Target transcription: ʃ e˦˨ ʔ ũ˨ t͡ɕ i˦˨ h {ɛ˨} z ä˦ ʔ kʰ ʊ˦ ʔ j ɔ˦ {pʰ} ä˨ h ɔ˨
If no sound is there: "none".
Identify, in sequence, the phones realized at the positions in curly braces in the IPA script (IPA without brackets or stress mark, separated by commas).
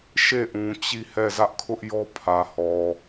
ɛ˦˨, pʰ